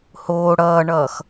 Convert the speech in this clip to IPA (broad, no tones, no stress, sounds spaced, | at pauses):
h oː ɽ ʌː ɳ ʌː x